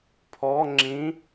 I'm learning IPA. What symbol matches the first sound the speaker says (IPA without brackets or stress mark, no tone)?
pʰ